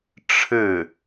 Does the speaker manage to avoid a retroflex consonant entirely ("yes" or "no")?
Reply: no